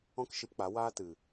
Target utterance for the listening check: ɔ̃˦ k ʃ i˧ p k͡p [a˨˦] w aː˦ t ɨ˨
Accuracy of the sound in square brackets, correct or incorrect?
correct